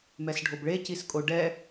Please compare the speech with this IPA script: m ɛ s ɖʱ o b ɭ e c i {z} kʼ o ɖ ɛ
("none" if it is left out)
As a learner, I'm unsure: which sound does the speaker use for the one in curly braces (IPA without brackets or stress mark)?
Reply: s